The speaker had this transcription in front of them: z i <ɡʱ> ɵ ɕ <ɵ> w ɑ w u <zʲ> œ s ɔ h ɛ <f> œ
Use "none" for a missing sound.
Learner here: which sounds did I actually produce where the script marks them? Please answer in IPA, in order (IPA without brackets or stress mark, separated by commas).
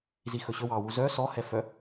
x, ɵ, z, f